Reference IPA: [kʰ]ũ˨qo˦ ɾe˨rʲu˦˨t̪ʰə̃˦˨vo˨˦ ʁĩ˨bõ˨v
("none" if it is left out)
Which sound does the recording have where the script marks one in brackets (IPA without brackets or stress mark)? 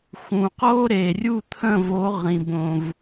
x